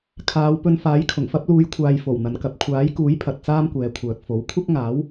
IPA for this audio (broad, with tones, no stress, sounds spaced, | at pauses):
kʰ aː˨˧ w p ɵ˧ n f aː˨˥ j kʰ ʊ˨˩ ŋ f ɐ˥ p̚ l uː˨˧ j kʷʰ aː˨ j f o˨˩ w n̪ ɐ˨ n k ɐ˨ p̚ kʷʰ aː˨˥ j k uː˨˥ j pʰ ɐ˨ t̚ t͡s aː˥ m kʷ ɛː˨˧ kʷʰ œː˨ k̚ f o˨˥ w kʷʰ ɐ˥ k̚ ŋ aː˨˥ w